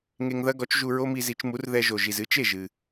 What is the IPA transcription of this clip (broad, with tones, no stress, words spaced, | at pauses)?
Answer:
ŋe˧ŋðɐ˥ɡɔ˩˥t͡ʃ ʒu˧ɹo˥mi˧zi˩˥t͡ʃ mu˩˥rðɛ˧ʒo˩ ʒi˩zɨ˥t͡ʃe˥˩ʒɨ˩